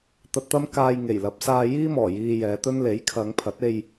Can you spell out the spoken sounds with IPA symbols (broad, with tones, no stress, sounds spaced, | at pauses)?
t̪ ɐ˧ t̚ t̪ ɐ˥ m k aː˧ j ŋ e˨˩ j l ɐ˨˥ p̚ s aː˧ j iː˥ m ɔː˨˩ j iː˧ j ɛː˨˧ t̪ ɵ˥ n l e˨˥ j kʰ ɐ˨˧ ŋ pʰ ɐ˨˥ t̚ e˧ j